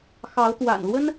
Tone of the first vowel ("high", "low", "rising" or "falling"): rising